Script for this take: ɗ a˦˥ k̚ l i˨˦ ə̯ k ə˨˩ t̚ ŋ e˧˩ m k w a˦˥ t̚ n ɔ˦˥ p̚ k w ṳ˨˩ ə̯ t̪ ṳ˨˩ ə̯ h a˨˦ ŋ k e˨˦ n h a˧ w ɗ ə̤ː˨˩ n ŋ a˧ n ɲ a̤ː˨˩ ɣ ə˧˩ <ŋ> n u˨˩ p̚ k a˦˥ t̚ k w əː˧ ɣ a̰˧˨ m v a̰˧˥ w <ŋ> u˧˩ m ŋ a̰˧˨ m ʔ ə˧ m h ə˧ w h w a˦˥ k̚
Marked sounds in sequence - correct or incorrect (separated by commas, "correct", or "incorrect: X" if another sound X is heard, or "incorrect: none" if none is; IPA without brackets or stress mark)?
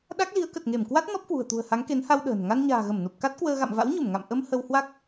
incorrect: m, incorrect: ɲ